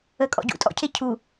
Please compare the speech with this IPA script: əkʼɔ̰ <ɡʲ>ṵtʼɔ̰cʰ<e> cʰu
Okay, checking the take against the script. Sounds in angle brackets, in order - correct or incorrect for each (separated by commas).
incorrect, correct